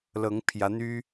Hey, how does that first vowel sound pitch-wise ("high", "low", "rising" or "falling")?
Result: rising